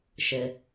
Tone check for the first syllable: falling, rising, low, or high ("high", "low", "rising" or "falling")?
low